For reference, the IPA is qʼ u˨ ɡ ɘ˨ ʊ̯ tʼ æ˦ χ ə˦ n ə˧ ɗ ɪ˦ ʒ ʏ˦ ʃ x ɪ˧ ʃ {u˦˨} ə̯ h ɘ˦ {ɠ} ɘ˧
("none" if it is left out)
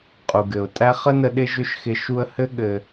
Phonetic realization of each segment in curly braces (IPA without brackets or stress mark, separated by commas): u˧, ɠ